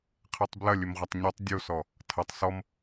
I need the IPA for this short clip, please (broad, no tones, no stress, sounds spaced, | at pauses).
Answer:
qʰ e tˤ b l ɐ lʲ ɘ m ʁʷ ɐ tˤ ɲ ɔ tˤ dʲ o s ɔ | tʰ ɐ tˤ s ɔ m